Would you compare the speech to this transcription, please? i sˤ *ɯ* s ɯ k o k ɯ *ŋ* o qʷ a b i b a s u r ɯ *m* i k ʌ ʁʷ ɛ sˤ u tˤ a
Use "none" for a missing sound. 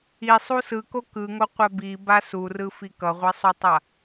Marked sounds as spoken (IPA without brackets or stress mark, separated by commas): u, ŋ, f